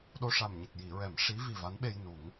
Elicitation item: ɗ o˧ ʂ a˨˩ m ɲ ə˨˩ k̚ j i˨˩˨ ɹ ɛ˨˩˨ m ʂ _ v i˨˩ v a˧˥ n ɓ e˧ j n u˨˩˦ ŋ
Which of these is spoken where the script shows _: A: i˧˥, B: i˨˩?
A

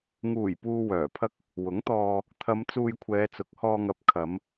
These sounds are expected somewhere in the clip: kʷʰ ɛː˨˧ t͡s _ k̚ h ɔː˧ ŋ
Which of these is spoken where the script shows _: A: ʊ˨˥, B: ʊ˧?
A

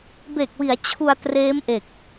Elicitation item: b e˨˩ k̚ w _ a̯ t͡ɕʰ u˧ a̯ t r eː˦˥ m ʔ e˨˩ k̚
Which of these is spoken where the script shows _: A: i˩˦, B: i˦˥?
A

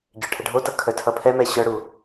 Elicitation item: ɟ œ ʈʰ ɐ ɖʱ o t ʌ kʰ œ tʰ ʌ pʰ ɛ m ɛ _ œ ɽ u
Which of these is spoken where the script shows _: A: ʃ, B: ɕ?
B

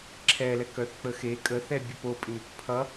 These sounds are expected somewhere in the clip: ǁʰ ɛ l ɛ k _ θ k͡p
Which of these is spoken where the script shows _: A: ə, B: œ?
B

